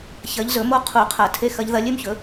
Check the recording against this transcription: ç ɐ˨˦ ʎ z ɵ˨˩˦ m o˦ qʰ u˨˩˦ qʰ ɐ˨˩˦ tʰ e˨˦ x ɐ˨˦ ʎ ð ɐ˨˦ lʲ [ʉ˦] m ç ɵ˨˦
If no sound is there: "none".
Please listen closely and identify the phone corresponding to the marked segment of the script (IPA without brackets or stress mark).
ʉ˦